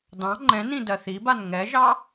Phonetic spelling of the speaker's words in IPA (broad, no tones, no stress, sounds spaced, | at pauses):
d ɑ̃ ŋ͡ǃ ɛ̃ n ĩ d ɜ θ i b a n ŋ ɛ ʒ ɑ